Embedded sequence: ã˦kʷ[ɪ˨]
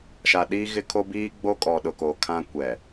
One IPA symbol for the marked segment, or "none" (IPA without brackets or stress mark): ɛ˨